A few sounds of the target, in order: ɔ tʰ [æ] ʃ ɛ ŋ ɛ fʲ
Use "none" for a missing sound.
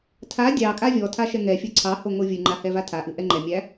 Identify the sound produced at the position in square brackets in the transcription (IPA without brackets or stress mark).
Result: a